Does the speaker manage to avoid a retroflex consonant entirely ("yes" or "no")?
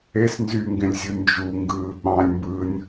yes